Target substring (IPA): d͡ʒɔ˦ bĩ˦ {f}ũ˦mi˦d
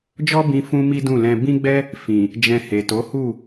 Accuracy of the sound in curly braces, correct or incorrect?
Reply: correct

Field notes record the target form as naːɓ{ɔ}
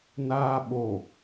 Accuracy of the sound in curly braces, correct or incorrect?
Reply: incorrect: o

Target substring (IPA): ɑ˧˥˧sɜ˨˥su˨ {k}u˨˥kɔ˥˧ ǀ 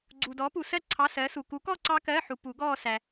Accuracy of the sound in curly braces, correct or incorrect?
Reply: correct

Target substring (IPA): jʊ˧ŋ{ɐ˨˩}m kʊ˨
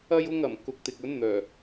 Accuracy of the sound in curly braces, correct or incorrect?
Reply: correct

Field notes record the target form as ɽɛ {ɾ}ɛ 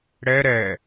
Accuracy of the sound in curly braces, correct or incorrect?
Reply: correct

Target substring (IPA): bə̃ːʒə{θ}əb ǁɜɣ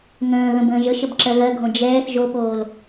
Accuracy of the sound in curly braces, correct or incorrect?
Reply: incorrect: ʃ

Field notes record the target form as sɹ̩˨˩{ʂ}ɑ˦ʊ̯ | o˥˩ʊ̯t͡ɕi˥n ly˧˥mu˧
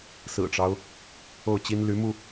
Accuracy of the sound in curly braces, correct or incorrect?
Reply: incorrect: ʈ͡ʂ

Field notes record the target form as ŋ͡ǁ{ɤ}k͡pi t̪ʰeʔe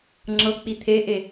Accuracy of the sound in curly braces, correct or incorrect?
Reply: correct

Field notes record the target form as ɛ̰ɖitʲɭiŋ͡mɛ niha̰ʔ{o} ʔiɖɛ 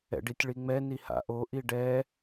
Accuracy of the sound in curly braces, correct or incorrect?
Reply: correct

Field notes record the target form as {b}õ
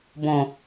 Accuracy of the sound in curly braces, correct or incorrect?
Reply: correct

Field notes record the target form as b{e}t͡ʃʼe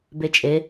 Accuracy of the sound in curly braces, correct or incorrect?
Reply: correct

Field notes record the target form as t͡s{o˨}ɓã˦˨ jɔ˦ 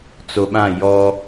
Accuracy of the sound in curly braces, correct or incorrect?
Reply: correct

